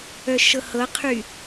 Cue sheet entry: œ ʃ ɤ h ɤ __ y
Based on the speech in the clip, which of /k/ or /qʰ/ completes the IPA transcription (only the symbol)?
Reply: qʰ